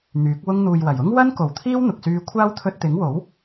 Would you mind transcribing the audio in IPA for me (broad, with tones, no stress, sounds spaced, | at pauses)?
n̪ yː˨˥ k̚ w ʊ˧ ŋ n̪ uː˨ j w ɐ˨˩ j ʊ˥ ŋ w ɐ˥ n k o˨˩ w t̪ʰ iː˥ w n̪ ʊ˨ k̚ s yː˧ kʷʰ aː˥ w t̪ʰ ɵ˧ t̚ t̪ ɪ˨˥ ŋ w o˨˥ w